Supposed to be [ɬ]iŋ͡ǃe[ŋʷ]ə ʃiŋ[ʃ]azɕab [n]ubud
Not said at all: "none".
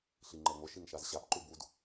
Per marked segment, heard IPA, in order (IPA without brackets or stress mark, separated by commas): ɬ, ŋʷ, ʃ, ǃ